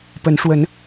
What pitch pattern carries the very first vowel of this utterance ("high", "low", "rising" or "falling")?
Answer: rising